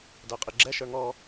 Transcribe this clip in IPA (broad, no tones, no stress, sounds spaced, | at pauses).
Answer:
d æ qʼ i ɡ͡ǁ ɛ ʃ ə˞ ŋ ɔ